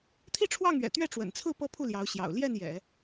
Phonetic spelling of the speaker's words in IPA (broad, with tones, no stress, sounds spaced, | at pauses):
t̪ʰ i˥˧ ʈ͡ʂʰ w ɑ˥˩ ŋ ɥ ɛ̰˨˩ t̪ ɥ ɛ˥˩ ʈ͡ʂ w ə̰˨˩ n t͡sʰ ɹ̩˥˩ p ɤ˥ pʰ u˥˩ l j ɑ˧˥ ʊ̯ ɕ j ɑ̰˨˩ ʊ̯ l j ɛ˥˩ n j ɛ̰˨˩˦